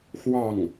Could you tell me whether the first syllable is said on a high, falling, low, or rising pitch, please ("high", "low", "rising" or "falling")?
falling